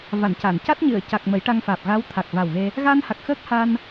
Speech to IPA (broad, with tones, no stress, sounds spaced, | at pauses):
v a˨˩˨ n c a˨˩˨ n c a˦˥ t̚ ɲ ɨ˨˩˨ ə̯ c a˨˩ k̚ m ə˨˩˦ j ʈ a˧ ŋ f aː˨˩ p̚ ɣ a˧˥ w t̪ʰ a˨˩ k̚ v a˨˩ w ɣ e˧ | ɣ aː˧ n h a˨˩ k̚ x əː˦˥ k̚ h a˧ n